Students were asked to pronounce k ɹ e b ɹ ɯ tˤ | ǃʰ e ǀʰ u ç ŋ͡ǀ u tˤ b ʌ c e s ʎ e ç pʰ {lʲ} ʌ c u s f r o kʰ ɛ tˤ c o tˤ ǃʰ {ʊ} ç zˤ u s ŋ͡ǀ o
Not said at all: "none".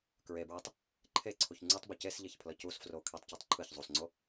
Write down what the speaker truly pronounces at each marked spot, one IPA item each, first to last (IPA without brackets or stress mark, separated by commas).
l, ɯ